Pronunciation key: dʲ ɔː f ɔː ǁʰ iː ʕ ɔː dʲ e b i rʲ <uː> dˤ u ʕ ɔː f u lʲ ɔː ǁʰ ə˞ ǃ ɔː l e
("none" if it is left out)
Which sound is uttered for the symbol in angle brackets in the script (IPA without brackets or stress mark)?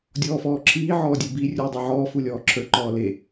uː